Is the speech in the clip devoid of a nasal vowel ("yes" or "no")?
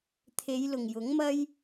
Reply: yes